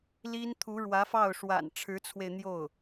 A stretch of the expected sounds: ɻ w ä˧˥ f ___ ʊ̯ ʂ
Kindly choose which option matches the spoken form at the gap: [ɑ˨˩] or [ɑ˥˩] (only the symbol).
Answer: ɑ˥˩